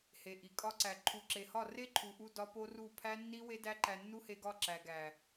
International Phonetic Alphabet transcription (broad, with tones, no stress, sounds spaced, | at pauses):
h e˨ ʔ i˨ kʼ ɒ˧ ǀ æ˨ ǃʰ u˨ ǁ e˨ h ɒ˦˨ r e˦ ǃʰ u˨ ʔ u˧ d ɒ˦ p o˦ r u˦˨ pʰ æ˦ nː i˦ w e˦ d æ˦ ǃ æ˧ nː u˦ h e˧ ɡ ɒ˦˨ ǁ æ˨ ɡ æ˨